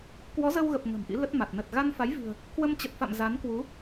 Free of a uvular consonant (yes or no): yes